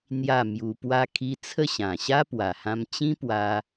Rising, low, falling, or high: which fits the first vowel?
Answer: falling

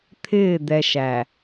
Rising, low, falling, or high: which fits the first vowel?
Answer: falling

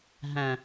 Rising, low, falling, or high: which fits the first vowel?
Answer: low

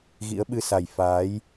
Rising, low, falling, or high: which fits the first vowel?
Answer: rising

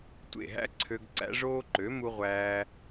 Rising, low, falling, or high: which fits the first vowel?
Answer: falling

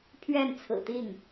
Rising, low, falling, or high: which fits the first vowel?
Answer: falling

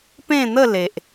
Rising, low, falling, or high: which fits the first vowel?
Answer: falling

